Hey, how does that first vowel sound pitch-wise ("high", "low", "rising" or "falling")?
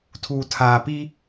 low